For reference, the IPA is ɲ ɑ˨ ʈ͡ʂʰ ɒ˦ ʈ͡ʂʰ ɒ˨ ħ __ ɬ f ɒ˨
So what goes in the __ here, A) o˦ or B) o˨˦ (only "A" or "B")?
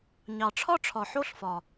A